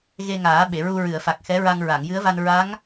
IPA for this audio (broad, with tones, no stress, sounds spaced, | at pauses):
ɣ e˧ ŋ aː˨˩˦ ɓ e˨˩˨ ɹ u˧ ɹ ɨ˨˩˨ ə̯ f a˨˩ k̚ x ɛ˧˥ ɹ a˧ ŋ ɹ a˨˩˨ ŋ j ɨ˧˥ ə̯ v a˧ n ɹ a˧˥ ŋ